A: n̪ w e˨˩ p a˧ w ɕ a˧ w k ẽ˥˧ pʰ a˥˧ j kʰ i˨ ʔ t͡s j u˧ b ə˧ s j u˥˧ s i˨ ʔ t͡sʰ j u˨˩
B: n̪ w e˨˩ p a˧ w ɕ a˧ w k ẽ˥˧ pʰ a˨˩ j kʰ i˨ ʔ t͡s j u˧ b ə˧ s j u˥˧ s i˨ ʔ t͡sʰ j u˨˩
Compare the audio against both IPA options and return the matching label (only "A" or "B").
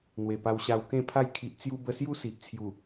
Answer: A